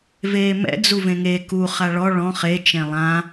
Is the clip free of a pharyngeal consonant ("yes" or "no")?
yes